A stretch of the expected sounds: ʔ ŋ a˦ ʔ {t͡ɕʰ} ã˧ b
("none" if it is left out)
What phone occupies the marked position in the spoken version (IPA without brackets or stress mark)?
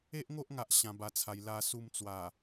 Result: ɕ